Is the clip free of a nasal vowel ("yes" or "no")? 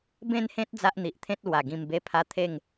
no